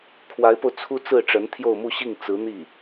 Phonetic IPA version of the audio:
kʰ w a˧˥ ɪ̯ p o˧ ʊ̯ t͡sʰ u˥ t͡s ɹ̩˥˩ ʈ͡ʂ ə˧˥ n t̪ʰ j o˥˧ ʊ̯ m u˥˧ ɕ i˥˩ ŋ t͡s ɹ̩˧˥ n̪ i˥˩

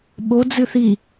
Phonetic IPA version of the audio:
ɓ o d͡z ɨ θ i

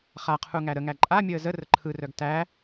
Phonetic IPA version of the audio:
χ a qʰ u ŋ æ ɾ ə ŋ æ ǃʼ a mʲ əː z ə r ə ǃʰ ɯ r œ ɡ t æ

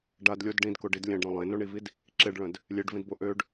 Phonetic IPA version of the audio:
ɖ a d lʲ o d ɖ ĩ d k o ɖ i d lʲ ɛ̃ ɖ ɾ õ lˠ ẽ n o ɳ i v i d | ǁ e ɖ ɭ œ̃ d | lʲ e ɖ v ĩ d b o ʔ ø ɖ

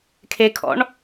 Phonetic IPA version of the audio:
kʰ e kʰ ɔ̰ ɳ

